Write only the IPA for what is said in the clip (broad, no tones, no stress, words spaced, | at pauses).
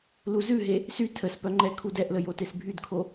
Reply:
luzʉɦe | sy tʰəspœŋ͡ǃɛ kʰudɛʔlə jotesbʱydkʰo